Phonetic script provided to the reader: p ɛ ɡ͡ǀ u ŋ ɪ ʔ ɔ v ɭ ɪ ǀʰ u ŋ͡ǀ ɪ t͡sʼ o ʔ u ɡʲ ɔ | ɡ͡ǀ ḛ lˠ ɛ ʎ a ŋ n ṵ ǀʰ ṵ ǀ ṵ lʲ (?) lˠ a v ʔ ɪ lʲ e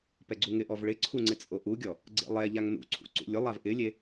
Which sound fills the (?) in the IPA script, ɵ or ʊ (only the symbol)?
ʊ